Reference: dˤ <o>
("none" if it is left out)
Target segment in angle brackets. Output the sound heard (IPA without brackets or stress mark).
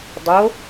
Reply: o